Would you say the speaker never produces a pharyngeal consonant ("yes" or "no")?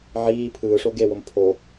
no